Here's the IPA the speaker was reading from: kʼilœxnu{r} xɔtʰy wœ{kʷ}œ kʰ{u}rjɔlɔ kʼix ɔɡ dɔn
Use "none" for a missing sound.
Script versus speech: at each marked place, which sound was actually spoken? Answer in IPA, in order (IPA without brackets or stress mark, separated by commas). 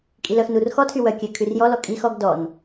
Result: r, kʲ, y